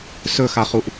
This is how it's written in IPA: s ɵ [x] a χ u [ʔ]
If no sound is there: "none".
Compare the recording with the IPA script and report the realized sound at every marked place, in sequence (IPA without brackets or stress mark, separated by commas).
x, ʔ